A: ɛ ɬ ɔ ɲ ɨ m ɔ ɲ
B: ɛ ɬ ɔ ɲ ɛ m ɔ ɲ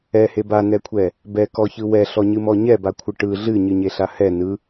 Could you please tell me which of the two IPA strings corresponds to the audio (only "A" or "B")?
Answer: A